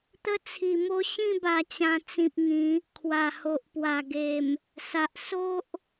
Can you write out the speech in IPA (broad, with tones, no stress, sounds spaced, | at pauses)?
t̪ ə˦ t͡sʰ i˨˩ m o˦ ɕ ĩ˥˧ b a˨˩ t͡ɕ ã˨˩ t͡s ĩ˨ p̚ ŋ ĩ˨˦ | kʰ w a˨˩ h o˨ ʔ p w a˨˩ ɡ e˨˩ m | s a˨ ʔ s o˦ ʔ